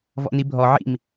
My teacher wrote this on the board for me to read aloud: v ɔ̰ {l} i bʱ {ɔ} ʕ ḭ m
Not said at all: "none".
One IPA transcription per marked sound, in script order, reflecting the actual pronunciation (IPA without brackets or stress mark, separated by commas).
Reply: n, ɔ